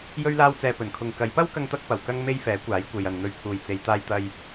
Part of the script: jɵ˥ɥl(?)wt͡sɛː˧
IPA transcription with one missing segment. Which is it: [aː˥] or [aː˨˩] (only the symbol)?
aː˥